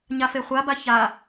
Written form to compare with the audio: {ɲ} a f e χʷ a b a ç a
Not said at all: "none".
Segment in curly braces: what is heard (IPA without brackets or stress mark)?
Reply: ɲ